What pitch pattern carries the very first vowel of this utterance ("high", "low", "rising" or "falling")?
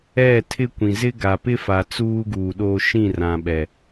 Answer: falling